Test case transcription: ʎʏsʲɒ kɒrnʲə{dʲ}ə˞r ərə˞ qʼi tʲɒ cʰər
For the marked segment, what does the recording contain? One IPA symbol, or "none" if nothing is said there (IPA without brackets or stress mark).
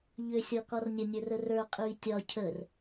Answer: nʲ